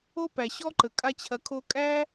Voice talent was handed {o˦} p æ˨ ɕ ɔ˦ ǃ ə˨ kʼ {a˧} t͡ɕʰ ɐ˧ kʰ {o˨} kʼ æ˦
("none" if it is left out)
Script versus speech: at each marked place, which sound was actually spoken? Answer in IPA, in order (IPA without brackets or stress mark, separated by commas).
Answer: o˦, a˦, o˦